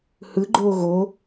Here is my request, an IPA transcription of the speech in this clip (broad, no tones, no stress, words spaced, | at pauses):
hɯɡ͡ǃoː ɣo